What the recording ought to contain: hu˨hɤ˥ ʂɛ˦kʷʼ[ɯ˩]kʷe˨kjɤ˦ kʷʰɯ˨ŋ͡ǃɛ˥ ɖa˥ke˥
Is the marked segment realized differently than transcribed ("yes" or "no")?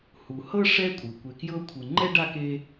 no